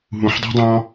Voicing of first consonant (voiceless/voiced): voiced